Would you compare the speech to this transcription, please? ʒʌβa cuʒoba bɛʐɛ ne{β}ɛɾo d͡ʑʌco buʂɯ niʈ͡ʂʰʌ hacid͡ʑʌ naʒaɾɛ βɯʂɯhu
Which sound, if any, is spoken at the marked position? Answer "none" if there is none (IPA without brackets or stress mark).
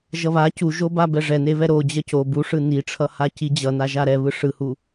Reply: β